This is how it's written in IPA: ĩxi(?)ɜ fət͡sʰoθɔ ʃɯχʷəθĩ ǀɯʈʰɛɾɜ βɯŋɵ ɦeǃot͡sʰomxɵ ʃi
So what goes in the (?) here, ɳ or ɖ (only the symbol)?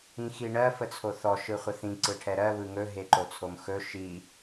ɳ